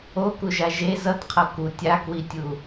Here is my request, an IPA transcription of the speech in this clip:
o k u ʒ a ʒ e z ʌ t qʰ ʌ k u tʲ a k w i tʲ u

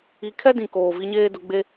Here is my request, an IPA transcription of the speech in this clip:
i˨˦ kʰ ɛ˦ d ĩ˨ k oː˨ v i˦ ɲ eː˦ d ʊ˨˦ ɡ͡b e˦

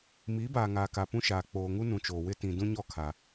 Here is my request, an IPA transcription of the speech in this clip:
m iː˨˦ b aː˨ ŋ aː˨ k a˨ p ũ˦ ʃ aː˨ k͡p oː˨ ŋ u˦ n ũ˨ t͡ʃ oː˨ w ɪ˦ t ĩ˨ d ũ˦ ɲ ɔ˦˨ kʰ a˨

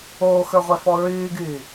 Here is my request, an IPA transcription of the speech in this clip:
oː x ə˞ ʁʷ ɛ f ɔ ɹ yː ɡ yː

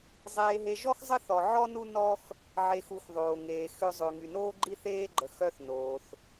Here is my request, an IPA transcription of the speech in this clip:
zˤ eː˧ ɦ e˧ ʒ ɔ˥ x zˤ ə˥ θ ɔ˧ ʕ ɔ˥ n u˥ n ɔ˥ x | ʕ e˧ x u˧ x ðˤ oː˧ ŋ eː˧ x ø˥ zˤ ø˧ ŋ y˧ n oː˥ ɡ͡ǃ i˥ θ eː˥ ɡ͡ǃ ə˧ x œ˥ θ n oː˧ θ

